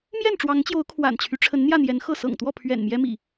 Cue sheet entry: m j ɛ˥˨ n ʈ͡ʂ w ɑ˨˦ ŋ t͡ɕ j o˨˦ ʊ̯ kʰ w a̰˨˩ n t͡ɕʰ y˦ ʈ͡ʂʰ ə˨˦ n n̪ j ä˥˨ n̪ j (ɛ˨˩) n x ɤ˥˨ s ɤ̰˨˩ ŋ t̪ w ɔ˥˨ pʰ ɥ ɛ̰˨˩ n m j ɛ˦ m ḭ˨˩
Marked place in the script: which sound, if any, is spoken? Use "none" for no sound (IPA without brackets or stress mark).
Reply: ɛ˨˦